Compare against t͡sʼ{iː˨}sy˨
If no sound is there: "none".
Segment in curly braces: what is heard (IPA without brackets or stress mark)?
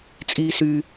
iː˨